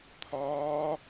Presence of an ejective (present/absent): absent